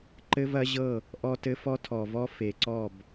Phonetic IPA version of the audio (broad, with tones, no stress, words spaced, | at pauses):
ǃɘ˦vɐ˦ʑɤ˦˨ | ʔɔ˦tɘ˦ fɔ˦tʰɔ˨vɔ˦ fe˨ǀɔ˦˨b